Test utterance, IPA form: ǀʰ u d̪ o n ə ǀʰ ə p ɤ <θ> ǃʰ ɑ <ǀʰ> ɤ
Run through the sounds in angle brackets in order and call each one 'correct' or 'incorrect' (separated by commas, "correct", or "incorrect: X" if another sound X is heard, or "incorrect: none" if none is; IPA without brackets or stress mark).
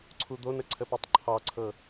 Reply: incorrect: tˤ, correct